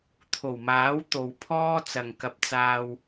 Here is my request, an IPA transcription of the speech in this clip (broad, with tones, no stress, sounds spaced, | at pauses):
t̪ʰ o˨˩ w m aː˨˥ w t̪ o˨ w pʰ ɔː˥ t͡s ɐ˨ ŋ k ɐ˧ p̚ t͡s aː˧ w